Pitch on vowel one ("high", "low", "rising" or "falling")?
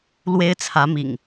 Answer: high